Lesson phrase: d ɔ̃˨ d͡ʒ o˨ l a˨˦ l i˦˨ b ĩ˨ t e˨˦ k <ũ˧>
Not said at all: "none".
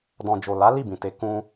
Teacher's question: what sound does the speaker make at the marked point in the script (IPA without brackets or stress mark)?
ũ˧